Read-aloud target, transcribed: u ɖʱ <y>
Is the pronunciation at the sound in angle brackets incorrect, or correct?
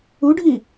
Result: incorrect